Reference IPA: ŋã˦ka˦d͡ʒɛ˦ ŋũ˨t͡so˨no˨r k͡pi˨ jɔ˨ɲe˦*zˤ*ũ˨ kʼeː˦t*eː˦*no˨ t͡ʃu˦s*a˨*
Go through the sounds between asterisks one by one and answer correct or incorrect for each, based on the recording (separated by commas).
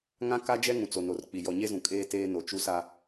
incorrect, correct, incorrect